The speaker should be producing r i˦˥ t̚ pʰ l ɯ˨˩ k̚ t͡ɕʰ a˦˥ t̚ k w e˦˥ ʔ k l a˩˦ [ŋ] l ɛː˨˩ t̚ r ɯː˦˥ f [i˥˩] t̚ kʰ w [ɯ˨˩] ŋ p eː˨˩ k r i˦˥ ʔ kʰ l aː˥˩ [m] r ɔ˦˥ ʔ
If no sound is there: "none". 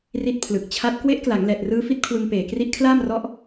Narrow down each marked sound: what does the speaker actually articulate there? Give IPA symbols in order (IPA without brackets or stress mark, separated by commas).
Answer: ŋ, i˦˥, ɯ˧, m